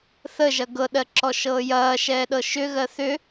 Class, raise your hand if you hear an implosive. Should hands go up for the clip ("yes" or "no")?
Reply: yes